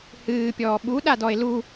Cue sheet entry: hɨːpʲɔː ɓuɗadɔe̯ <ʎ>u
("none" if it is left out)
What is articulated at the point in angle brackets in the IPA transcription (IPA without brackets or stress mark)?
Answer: l